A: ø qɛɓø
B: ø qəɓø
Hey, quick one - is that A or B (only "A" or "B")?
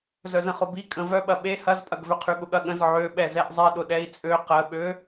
B